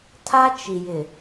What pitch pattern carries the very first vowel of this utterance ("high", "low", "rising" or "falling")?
high